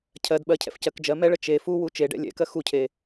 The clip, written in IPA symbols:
cʰ ɜ d ɓ ɜ cʰ ɛ̰ f c ɜ k d͡ʒ ɜ m ɛ ɭ ə t͡ʃ e f u w u t͡ʃ e ɖ ɛ̰ lʲ ɛ̰ k ɜ x u cʰ e

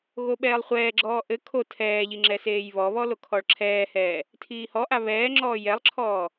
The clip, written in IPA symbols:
ɣ o ɓ ɛː lˠ χʷ ɛː ɡ͡ǁ ɔː ʔ ɘ kʰ o tʰ ɛː ʎ i ŋ͡ǁ ɛ s eː j β ɔ β ɔ l o kʰ ɔ ɭ ǁʰ ɛː h ɛː | tʰ iː h ɔ ʔ a β ɛː ŋ͡ǁ ɔː j ɛ lˠ ǁʰ ɔː

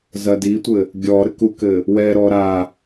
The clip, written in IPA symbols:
z ɐ d i tʷ ɘ | ɡʲ ɔ ɾ ɘ k u k ɘ | w ɛ ɾ ɔ ɾ a

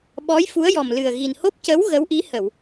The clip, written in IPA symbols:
ɓ ɔ˧˥ j f u˧˥ ə̯ j ɔ˨˩ m l ɨ˨˩ ə̯ ɣ i˨˩ n h o˦˥ p̚ c ə˧˥ w ɣ ə˧˥ w ʔ i˧˥ h ə˨˩˨ w

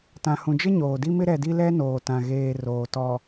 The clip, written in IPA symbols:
t ã˨ h ũ˨ d͡ʒ ɪ˦ ɲ oː˨ d i˦ m ɪ˦ ɾ ɛ˨ d i˦ l ɛ˦ n oː˨ t ã˨ ɣ eː˨ r oː˨ t ɔ˨

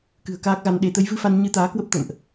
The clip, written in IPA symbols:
k ɨ̤˨˩ ə̯ k aː˦˥ k̚ ɣ a˧ n ɗ e˧ t̪ ə˨˦ j v ɨ˧ f a˧ n ɲ ɨ˧ t̪ aː˨˦ k w ə˦˥ p̚ t̪ ə̰˧˨ m ʔ

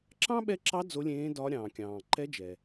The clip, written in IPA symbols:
ǁ ɑ̃˥ ɓ ɛ˧˥ ǁ ɑ˧˥ d͡z o˧˥ lʲ ẽː˧˥ d ɒ˧˥ ɾʲ ɑ̃ː˩ kʲ ɑ̃ː˩ ǃ ɛ˧˥ d͡ʒ ɛ˩

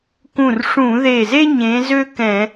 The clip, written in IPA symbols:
k ũ˧˩ r ʂ ũ˧˩˧ ð e˧˩ z e˥ ɲ ẽ˨˦ z ø˥ k ɛ̃˧˩˧

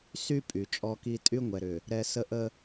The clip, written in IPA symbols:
s y˦ pʼ y˨ t͡ʃʼ ɔ˦ k i˦ tʼ y˦ ŋʷ ɛ˨ ɾ ʏ˨ | ɾ ɛ˦ s ə˦ ʔ ə˦

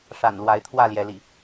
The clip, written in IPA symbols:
ʂ a̰˨˩ n l w a˨˦ ɪ̯ t̪ʰ w ä˥˨ l j ɛ˨˦ l ḭ˨˩

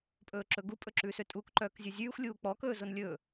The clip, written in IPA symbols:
pʼ ɵː ǁ ɵ ɡ u pʼ ɵ ǁ ʉː s ø tʼ u k ǃ œː k zʲ ɵ zʲ ʉː xʷ lʲ uː k͡p ɔ k ɵː z o n lʲ ɵː

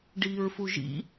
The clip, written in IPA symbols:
ɖ iː ɹ f u ʒ ḭ

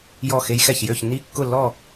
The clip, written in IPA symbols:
j ɔ˧˩ x e˧ j x ɛ˧˩ ç j ø˥˨ ç nː i˥˨ kː ʊ˥˨ lː ɔ˥˨

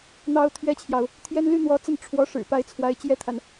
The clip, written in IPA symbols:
n̪ ɑ˥ ʊ̯ t̪ʰ ɥ ɛ˥ t͡ɕʰ j ɑ˨ ʊ̯ | t̪ʰ j ɛ˥ n l y˥ n̪ w ɔ˧˥ t͡s ə˥˩ n ʈ͡ʂʰ w ɔ˧˥ ʂ ɻ̩˨˩ p a˧˥ ɪ̯ t͡sʰ w a˧˥ ɪ̯ t͡ɕ j ɛ˥ t̪ʰ a˨ n

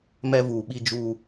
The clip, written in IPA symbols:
m ɛ˦ v uː˨ ɓ i˦ d͡ʒ uː˦

